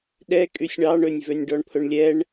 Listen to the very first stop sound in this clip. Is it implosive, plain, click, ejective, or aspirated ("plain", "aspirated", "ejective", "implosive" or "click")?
implosive